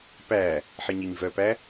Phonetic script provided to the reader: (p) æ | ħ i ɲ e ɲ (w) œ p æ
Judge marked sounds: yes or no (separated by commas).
yes, no